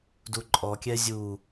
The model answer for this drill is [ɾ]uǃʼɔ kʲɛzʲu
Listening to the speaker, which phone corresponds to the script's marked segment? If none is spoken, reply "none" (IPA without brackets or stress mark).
d